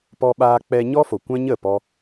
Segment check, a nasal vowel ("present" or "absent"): present